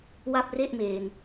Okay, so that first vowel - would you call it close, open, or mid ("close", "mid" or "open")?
open